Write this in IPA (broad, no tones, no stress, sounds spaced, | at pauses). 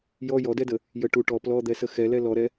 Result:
j ɔ j ɔ d ɛ d ə | j ə ʈ u ʈ ɔ p l ɔ d̪ ɛ s ə x ɛ l ɛ l ɔ ɾ ɛ